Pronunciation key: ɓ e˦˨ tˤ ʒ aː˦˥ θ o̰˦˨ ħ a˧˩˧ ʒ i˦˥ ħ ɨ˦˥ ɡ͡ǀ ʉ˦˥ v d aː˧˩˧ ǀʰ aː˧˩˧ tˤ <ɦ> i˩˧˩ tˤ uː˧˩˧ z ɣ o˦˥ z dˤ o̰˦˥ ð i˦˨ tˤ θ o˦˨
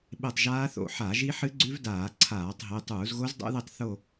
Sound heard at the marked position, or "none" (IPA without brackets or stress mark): ɦ